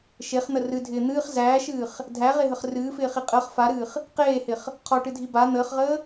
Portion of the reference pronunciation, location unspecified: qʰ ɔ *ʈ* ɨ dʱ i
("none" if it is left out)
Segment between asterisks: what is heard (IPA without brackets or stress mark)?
ʈ